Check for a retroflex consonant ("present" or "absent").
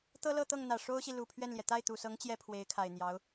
present